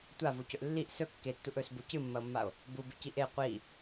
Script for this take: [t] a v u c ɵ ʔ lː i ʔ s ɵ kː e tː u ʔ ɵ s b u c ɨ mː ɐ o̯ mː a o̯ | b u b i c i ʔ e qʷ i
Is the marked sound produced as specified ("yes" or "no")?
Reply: no